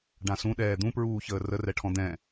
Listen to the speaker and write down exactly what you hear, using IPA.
ɖ ã s ũ ɗ ɛː d̪ ũ p ɹ uː ç əː r ə r ɛ ʈʰ ɔ̃ d̪ ɛ̃

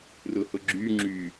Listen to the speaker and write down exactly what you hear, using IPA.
r ʊ h ʊ ɡ͡ǁ y ŋ͡ǁ y

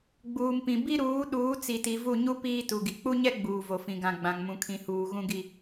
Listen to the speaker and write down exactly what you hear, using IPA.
ɡ͡b uː˨ m p ĩ˨ b i˦ ɾ uː˨˦ ɗ uː˨˦ t͡s i˨ t i˨ v u˦˨ ɲ u˦ p iː˦ t u˨ ɡ i˨ k͡p u˦ ɲ ɛ˦ ɡ͡b uː˨ v o˨ f ĩ˨ ɡ ã˨ ɡ͡b ã˨ ŋ m ũ˨ kʰ ĩ˨ h uː˨ ɣ ũ˦ ɡ i˦

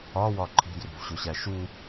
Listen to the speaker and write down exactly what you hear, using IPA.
ɒ w ɒ ǃʰ i̤ d r ṳ v ɕ o ɕ æ ʃ u

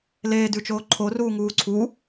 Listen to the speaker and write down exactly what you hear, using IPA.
l eː d ʉ t͡ʃ oː ǃʰ o r uː ŋ uː ǀʰ u

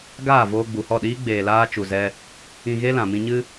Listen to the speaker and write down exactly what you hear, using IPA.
ɡ aː˦˨ v oː˧ ɡ͡b u˨ h ɔ˦˨ ɗ iː˦ ɡ͡b eː˨ l aː˧ t͡ʃ u˨ z ɛ˧ | ĩ˧ ɣ e˦ l ã˨ m ĩ˧ ɲ ɨ˦

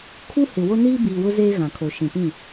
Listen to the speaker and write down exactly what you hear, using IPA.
kʰ u˦ h ɪ˨ w o˦ n iː˦ b iː˨ w ʊ˦ z eː˦ ɣ ã˨ kʰ o˨ ʃ ĩ˨ p ĩ˦˨

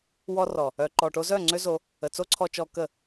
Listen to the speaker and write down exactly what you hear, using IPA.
w ɔ˧ r ɔ˨ | œ˨ ǃ ɔ˨ ʈ o˧ z œ˦˨ ŋ͡ǀ ø˦ z o˧ | ə˨ t͡s o˦ ǀʰ ɔ˧ t͡ʃ ɔ˧ k ə˦˨

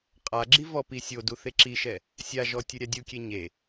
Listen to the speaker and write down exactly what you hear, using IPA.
qʼ a ɡ͡ǁ i v ɔ p i sʲ o d u θ e ǁ i ʃ ɛ | sʲ a ʒ ɔ tʲ ɯ ɾʲ a dʲ u kʲ e ɲ e

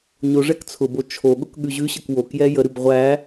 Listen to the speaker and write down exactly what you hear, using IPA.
ɲ o ʐ ɛ k t͡sʰ ʊ b o t͡ʃʰ o ɠ ʊ k ɠ ʉ ʑ ʉ ɕ ə k w o k j ɛ j ə ɾ ʉ b ʁʷ æ

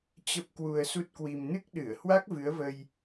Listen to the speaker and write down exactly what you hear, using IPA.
t͡ɕ ə˦˥ p̚ k w u˧ ə̯ s u˦˥ t̚ k w i˧ m n ɨ˦˥ k̚ ɗ ɨ˧˩ ə̯ h w a˦˥ k̚ v ɨ˨˦ ə̯ v ə˧ j

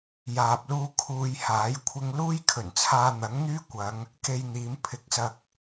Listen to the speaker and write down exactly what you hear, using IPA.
j aː˧ p̚ l uː˥ kʰ uː˧ j h aː˨˥ j kʷʰ ɪ˧ ŋ l uː˥ j kʰ ɵ˨˩ n t͡sʰ aː˧ n̪ ɐ˨˥ ŋ n̪ yː˥ kʷ ɐ˨˧ ŋ | k e˧ j n̪ iː˨˧ m pʰ ɪ˨˥ k̚ s ɐ˧ k̚

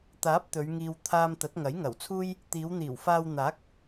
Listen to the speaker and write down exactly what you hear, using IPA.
t̪ aː˨˥ p̚ t̪ ɵ˨˧ ɥ ŋ iː˧ w t̪ʰ aː˧ m t̪ ɐ˨˥ t̚ ŋ ɐ˨˥ j ŋ ɐ˨˩ w t͡sʰ uː˥ j | t̪ iː˨˧ w n̪ iː˨˩ w f aː˧ w n̪ aː˨˥ k̚

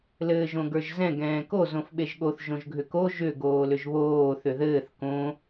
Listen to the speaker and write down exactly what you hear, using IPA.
l ɘː ʒ õ ɡ ə˞ ʒ z ɛ̃ ɡ ɛ̃ː k o z õ f ɓ e ʒ ɠ o θ ʒ õ ʒ ɡʱ ʏ k o ʒ ʏ ɡ oː l ʏ ʒ β oː θ ʏ ð ɘː θ k õ

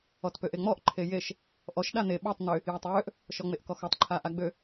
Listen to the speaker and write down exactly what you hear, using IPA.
ɔ t p ø ʔ e ŋ͡m ɔ ʔ ǃʰ e j e ʃ | ʔ ɔ ʃ ɗ a n̪ e ɓ ɔ tˤ n̪ ø | j a tˤ ɹ ø ʔ | ʃ ɔ ŋ͡m e ʔ k ɔ x ɔ tˤ ǃʰ a ʔ a ɡ͡b ø

